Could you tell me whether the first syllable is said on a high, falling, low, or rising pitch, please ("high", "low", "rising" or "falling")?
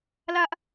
high